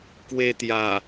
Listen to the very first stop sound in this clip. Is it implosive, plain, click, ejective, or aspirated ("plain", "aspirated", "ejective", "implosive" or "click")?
plain